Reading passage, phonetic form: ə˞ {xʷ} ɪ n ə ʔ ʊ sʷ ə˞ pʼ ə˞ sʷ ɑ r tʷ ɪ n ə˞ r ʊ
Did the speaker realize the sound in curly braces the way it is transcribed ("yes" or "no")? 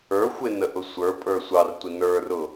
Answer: yes